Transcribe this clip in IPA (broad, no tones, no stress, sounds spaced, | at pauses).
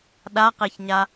ɗ a q e ç ɲ a